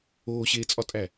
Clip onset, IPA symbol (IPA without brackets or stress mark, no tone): oː